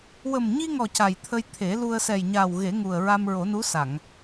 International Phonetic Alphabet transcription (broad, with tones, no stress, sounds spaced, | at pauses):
w ə˨˩ m ɲ i˧ ŋ ɔ˨˩ c a˨˩ j t̪ʰ ə˧ j t̪ʰ e˨˩˦ l u˧ ə̯ s ɛ˨˩ j ɲ a˨˩ w ɣ e˨˩˦ ŋ u˨˩ ə̯ ɹ a˧ m ɹ o˨˩˦ n u˧˥ s a˨˩˨ ŋ